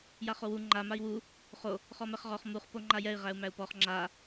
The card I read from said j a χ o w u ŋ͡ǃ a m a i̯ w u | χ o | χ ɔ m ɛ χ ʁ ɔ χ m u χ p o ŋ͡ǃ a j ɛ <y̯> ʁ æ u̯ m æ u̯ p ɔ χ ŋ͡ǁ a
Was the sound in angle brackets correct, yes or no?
no